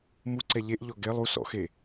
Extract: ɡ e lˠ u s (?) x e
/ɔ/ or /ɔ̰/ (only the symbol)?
ɔ̰